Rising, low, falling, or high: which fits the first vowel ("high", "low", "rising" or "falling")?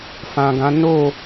low